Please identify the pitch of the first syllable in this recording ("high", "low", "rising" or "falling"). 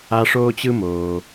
high